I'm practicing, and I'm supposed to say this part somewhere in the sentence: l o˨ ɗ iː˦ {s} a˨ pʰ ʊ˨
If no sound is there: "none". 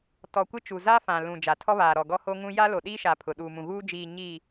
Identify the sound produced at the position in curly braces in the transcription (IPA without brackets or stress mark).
ʃ